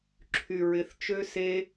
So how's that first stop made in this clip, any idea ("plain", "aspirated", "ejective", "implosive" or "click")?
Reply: click